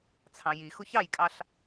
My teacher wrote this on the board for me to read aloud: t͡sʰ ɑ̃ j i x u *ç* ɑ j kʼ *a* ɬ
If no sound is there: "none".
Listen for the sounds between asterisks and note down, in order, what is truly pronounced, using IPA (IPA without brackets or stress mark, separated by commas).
ç, ɑ